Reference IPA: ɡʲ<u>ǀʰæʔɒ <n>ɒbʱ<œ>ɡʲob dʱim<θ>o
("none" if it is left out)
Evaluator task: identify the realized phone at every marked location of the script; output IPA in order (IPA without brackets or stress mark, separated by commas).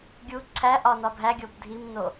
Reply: u, n, æ, n